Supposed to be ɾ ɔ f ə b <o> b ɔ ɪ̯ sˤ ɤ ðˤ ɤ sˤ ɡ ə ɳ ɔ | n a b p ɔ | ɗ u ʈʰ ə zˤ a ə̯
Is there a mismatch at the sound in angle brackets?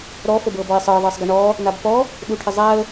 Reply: yes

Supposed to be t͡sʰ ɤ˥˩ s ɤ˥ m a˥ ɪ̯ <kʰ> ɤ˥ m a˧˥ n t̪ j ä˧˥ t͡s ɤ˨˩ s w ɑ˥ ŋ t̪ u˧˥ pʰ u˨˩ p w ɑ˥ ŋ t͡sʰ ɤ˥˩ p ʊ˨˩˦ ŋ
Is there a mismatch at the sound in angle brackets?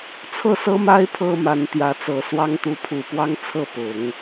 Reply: yes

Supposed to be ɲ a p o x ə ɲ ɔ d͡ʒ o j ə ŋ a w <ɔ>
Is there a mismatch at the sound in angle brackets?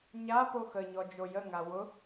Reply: yes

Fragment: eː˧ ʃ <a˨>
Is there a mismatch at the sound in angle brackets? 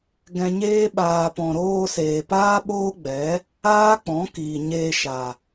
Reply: no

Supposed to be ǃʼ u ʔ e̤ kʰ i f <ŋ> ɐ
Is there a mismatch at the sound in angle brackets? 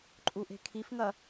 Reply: no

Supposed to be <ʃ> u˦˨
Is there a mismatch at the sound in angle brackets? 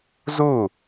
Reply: yes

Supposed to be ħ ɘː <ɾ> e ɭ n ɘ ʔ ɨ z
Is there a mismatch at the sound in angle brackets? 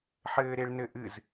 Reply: no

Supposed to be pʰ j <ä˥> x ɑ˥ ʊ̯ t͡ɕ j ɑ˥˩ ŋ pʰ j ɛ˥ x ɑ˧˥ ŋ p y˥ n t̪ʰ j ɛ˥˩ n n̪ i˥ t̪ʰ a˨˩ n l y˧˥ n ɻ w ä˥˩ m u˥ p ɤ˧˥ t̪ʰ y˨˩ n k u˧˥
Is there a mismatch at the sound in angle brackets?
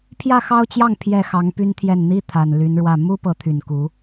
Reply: yes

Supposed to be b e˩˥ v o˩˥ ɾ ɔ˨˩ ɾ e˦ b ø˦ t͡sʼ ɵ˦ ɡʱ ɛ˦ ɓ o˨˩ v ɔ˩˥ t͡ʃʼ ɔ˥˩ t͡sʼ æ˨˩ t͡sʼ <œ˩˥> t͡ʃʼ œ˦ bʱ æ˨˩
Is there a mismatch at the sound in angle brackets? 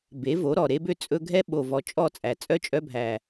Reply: yes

